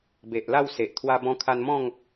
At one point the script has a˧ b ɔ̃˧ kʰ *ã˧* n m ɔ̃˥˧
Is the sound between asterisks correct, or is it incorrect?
incorrect